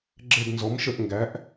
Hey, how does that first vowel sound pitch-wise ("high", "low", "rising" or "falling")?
falling